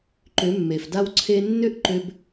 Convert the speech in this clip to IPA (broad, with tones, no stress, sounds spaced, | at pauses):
ǃ ʏ˨˦ mː e˨ f d a˦ w ǀʰ e˧ nː ʏ˦ ʔ ǃ ʏ˧ b